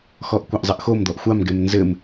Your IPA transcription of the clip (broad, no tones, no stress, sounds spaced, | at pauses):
x ɔ ʔ kʷ a ʔ zˤ ɨ ʔ x o m d̪ ɔ ʔ xʷ a m ɡ ɛ m n z ɘ m